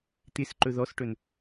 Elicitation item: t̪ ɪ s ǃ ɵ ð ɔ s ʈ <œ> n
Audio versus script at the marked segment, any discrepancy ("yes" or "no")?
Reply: yes